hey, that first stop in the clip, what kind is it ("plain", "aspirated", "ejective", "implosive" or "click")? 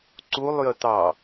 click